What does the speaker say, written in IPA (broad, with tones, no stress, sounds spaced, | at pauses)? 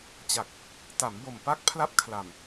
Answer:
t͡ɕ a˨˩ k̚ | t a˩˦ m b o˨˩ m p a˦˥ k̚ pʰ l a˥˩ p̚ kʰ l a˨˩ m